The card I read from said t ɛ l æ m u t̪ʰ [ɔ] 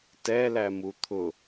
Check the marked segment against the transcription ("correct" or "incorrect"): incorrect